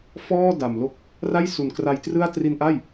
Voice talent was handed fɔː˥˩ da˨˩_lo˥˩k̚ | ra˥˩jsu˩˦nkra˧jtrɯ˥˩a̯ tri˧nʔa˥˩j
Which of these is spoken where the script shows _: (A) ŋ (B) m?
B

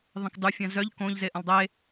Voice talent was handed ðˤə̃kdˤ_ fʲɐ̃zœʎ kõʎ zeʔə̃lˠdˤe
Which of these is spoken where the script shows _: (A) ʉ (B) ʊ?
A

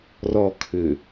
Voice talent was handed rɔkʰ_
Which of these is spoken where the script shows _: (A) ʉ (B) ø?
B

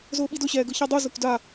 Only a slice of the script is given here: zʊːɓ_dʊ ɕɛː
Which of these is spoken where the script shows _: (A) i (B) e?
A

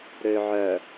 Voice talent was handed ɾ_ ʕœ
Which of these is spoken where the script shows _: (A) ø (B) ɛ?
A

